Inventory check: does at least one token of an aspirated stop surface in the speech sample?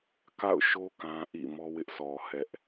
no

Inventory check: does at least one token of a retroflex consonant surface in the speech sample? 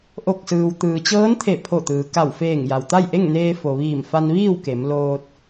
no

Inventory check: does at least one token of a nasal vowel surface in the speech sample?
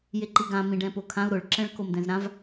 yes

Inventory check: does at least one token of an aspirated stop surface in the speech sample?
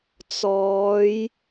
no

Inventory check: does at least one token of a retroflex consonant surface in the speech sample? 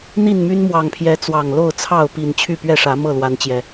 yes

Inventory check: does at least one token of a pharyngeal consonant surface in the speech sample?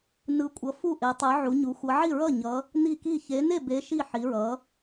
yes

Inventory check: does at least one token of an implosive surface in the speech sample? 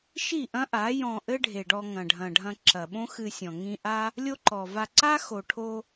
yes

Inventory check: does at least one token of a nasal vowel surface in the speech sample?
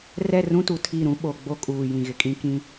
yes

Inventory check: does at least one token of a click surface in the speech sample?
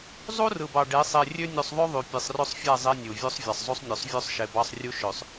no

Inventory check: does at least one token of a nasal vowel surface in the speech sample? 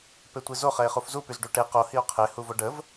no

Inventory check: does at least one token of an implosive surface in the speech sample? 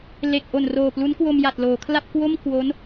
no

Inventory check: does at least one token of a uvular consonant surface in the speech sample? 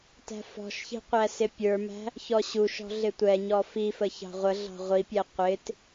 yes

